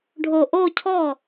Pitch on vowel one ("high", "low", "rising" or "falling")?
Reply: low